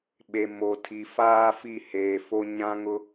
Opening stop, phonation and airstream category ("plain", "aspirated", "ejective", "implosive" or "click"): implosive